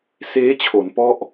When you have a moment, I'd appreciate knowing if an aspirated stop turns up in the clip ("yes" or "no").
yes